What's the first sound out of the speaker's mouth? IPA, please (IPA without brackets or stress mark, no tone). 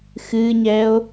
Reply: x